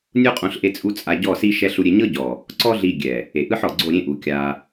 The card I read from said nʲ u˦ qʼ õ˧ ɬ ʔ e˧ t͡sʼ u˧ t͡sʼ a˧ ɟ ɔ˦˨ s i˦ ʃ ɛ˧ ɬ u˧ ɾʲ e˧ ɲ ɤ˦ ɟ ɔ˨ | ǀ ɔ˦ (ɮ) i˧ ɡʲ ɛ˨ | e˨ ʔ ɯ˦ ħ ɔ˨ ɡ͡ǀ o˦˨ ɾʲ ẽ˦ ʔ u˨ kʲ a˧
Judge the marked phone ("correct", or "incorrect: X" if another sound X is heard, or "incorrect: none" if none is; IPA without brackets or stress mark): correct